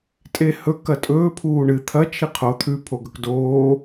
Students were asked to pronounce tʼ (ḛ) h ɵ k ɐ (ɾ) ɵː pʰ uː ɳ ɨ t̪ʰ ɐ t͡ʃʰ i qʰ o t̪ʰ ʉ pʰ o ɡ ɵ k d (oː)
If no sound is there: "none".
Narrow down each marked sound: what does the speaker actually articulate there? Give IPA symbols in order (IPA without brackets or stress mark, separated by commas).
e, tʼ, oː